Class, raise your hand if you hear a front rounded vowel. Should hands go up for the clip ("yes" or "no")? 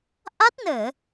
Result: no